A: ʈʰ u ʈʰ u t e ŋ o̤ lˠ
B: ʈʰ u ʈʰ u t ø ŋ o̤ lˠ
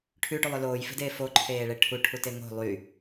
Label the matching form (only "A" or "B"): A